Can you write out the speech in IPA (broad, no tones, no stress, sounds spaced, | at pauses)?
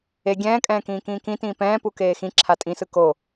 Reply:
e ɡʲ ɛ̃ː kʼ ɛ̃ː k ĩː k ĩː k ĩ t ĩː p ɛ̃ː p u k eː x ĩ ǁʰ a tʼ ĩ s ɯ k o